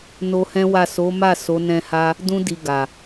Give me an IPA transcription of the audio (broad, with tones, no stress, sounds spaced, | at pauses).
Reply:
n o˧ h ɛ̃˦ w a˦˨ s o˨˦ m a˦˨ s o˨˦ n ɛ̃˧ h a˦ | d ũ˧ d i˨ ɡ a˨